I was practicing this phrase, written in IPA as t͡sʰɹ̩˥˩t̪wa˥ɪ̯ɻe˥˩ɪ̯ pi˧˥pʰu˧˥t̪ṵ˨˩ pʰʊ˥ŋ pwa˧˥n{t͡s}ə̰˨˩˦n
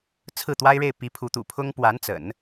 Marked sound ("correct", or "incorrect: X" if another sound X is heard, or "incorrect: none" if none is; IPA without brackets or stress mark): correct